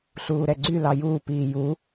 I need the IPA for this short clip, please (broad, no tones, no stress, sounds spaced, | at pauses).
ɬ uː ɾ ɛ ɡ͡ǀ y l ɑ j uː p iː j u